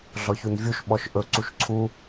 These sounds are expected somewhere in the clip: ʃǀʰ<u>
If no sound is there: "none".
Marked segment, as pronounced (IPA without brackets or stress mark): u